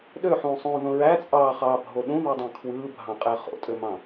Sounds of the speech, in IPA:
ɗ ø ħ ũː sˤ ũː ð õ ɹ æ t͡sʼ ɑː χ ɑː bʱ o ɗ ũ ð u dˤ ɑ̃ kʰ w ɯː bʱ ɑ̃ qʼ æ χ o̰ tʼ ø m ɑ̃

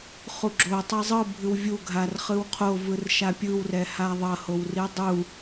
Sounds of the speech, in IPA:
χ u ɡ͡ǁ o tˤ ɛ zˤ ɯ bʱ ɯ w vʲ u ɡʱ a r χ ɯ w qʰ o v ɯ r ʃ a pʲ ɯ w r ɛ h a ðˤ ʌ h o w r i dˤ u

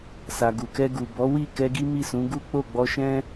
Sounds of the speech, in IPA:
s a˨ ɡ u˨ k ɛ˧ ɡ u˨ b ɔ˨˦ w i˦˨ k ɛ˧ ɡ i˦ m i˦˨ s ũ˨˦ ɡ u˦ k͡p o˦˨ ɡ͡b ɔ˧ ʃ ɛ̃˦

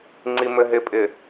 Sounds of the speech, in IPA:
ŋ͡ǀ i m ɘ ɦ ɪ pʼ ɪ

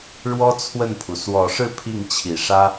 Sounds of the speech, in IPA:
ɻ w ɔ˥ t͡sʰ w ə˥˩ n pʰ u˩ s w ɔ˨˩ ʂ ɻ̩˥˧ pʰ i˥˩ ŋ t͡ɕʰ i˨˩ ʂ ä˥

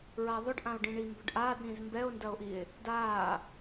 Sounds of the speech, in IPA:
ɹ a ðˤ ʏ ɖ ʔ ã o̯ ɖ ĩ ɳ i m b ʏ ɖ ʔ aː d ɾ ĩ z m b ɛ o̯ n d ɐ o̯ ʔ i e̯ | d aː

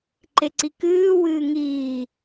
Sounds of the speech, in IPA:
ǃ e ǀ i k ɨː w ɨː ŋ iː

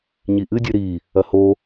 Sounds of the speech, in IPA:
ɲ i ʔ ɨ dʲ ɨ ɾ i | ɐ h o

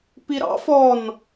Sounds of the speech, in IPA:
p i ɾ ɑ̰ f ɔ n

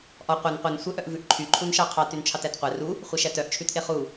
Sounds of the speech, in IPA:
ʔ ɔ qʷ e n qʷ e n sʷ œ ʔ œ ʔ v ʉ ʔ ǃʰ y ǃʰ u n ʃ ɑ qʰ ɑ t y n t͡ʃʰ ɑ t æ t qʷ ɛ r u | χʷ e ʃ æ t œ ʔ t͡ʃʰ ʉ t ʔ e χ u

